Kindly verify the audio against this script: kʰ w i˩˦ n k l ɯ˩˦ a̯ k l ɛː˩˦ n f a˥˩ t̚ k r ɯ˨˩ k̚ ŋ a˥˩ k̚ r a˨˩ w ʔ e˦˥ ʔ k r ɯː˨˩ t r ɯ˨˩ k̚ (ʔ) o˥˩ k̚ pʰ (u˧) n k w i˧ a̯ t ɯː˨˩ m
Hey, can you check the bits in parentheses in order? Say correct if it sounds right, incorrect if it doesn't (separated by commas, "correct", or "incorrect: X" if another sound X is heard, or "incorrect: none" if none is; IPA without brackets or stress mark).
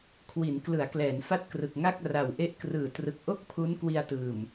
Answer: correct, incorrect: u˦˥